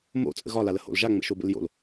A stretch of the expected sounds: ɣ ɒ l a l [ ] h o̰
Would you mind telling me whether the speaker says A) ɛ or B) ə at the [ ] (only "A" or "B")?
B